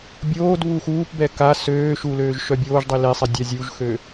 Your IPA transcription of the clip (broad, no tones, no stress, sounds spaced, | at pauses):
bʲ oː d β u x uː p b ɛ k a s øː ʃ u l øː ʒ ʃ œ bʲ oː ʒ dˤ i l e sˤ i dʲ a zʲ u ʒ x ø